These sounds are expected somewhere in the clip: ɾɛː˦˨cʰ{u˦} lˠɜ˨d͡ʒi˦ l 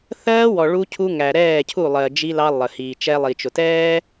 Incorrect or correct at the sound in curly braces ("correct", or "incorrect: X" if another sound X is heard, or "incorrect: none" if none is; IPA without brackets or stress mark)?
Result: incorrect: u˦˨